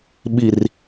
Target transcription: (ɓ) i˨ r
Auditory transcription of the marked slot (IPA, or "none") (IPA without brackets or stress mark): ɓ